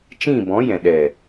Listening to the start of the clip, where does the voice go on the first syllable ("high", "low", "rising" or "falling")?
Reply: falling